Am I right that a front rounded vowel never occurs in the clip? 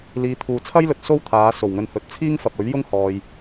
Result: yes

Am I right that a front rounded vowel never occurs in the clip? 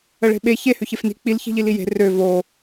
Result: no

